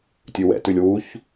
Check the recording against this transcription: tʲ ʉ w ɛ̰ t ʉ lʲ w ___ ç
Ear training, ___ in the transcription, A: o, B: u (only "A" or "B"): B